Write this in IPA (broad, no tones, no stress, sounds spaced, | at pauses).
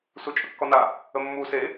s u t͡ʃʼ ə kː ɔ n a | ə mː u s e